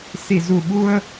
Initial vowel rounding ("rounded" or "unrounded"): unrounded